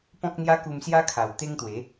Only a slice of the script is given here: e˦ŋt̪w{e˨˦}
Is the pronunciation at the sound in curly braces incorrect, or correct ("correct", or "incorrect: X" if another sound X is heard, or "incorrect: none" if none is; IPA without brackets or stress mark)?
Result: correct